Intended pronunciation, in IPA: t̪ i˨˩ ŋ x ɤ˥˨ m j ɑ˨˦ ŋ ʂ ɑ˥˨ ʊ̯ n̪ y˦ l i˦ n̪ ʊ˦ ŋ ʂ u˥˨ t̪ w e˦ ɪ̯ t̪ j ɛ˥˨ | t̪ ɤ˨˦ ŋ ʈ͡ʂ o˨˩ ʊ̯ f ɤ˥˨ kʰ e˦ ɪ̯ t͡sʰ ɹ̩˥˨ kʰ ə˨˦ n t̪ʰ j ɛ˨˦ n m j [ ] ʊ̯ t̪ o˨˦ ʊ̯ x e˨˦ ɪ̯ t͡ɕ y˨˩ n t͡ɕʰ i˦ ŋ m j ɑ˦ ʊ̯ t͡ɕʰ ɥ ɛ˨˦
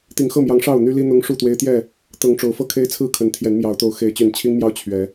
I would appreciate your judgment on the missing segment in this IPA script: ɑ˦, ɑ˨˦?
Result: ɑ˨˦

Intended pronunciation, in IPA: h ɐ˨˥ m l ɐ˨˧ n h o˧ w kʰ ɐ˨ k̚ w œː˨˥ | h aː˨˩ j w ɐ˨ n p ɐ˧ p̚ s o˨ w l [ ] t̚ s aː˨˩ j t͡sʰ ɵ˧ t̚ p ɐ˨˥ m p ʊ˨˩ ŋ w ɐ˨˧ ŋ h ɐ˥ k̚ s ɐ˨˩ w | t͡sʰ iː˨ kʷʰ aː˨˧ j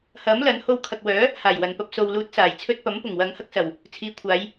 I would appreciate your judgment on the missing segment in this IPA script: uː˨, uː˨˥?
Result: uː˨˥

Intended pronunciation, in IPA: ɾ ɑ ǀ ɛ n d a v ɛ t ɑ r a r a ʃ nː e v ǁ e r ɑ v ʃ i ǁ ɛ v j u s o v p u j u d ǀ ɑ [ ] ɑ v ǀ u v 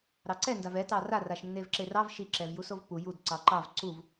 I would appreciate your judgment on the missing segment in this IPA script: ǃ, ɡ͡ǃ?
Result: ǃ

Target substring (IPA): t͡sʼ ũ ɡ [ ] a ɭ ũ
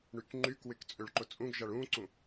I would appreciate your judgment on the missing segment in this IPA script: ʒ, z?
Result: ʒ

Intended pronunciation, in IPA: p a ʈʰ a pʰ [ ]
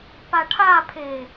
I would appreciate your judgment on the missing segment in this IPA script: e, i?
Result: e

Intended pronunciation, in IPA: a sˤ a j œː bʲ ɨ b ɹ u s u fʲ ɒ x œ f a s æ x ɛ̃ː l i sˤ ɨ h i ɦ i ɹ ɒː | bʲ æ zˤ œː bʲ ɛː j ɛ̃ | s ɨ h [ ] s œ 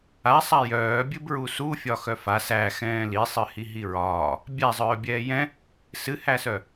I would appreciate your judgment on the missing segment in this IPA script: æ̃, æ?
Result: æ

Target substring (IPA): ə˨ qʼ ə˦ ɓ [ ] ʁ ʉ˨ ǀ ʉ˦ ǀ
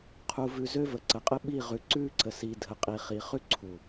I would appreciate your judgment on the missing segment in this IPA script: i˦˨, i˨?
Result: i˦˨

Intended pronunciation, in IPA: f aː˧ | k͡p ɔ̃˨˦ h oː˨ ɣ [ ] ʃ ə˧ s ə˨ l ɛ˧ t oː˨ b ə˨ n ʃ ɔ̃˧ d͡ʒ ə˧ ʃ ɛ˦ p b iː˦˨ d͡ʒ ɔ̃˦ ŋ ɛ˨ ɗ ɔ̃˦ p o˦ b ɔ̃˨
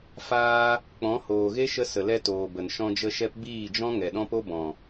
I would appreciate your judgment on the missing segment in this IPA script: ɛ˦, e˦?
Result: e˦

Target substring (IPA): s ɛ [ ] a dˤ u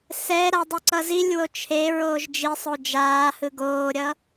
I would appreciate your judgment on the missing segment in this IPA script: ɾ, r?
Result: ɾ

